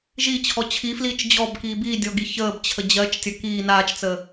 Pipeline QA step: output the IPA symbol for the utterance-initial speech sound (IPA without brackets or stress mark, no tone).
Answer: ʒ